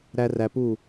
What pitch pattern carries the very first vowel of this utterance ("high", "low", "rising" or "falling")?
high